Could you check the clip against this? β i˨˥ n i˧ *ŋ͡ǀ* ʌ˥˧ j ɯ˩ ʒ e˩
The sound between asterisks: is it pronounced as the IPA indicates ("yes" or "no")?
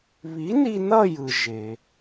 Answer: no